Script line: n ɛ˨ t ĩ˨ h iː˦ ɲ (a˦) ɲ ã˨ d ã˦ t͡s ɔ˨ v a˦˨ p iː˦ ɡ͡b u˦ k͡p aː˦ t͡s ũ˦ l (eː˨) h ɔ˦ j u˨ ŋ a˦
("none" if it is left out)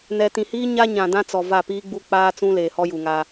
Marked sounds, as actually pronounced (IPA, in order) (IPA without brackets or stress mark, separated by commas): a˦, eː˨